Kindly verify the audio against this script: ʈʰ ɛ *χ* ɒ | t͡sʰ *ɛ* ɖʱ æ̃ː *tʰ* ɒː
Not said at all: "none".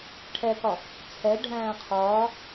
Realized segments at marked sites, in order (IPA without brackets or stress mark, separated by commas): k, ɛ, qʰ